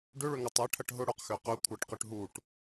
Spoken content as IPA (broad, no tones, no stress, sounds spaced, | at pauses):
ɖ ʏ ɭ ʏ ŋ ʏ tˤ e ʈʰ ɐ ʈ ɦ ʊ ɽ ʊ q x ø q ø kʷʰ a ʈ q ʏ ʈ ɦ u ʈ